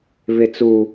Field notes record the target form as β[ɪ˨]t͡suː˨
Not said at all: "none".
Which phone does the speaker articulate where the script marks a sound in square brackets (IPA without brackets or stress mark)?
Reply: ɪ˨